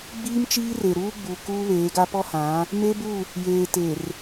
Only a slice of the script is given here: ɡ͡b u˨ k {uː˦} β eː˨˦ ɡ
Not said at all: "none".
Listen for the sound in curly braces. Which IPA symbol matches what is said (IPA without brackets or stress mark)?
uː˦